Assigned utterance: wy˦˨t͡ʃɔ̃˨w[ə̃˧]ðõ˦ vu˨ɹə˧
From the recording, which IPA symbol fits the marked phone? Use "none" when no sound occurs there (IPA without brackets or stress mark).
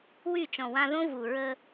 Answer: ã˧